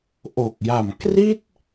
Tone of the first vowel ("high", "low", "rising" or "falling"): low